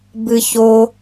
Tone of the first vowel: high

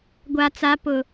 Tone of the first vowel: low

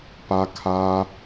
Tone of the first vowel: high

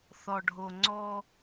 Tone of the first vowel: low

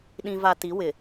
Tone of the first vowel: low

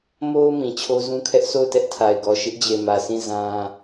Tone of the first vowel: high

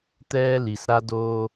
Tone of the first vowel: high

